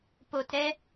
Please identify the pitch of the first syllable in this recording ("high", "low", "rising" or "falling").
low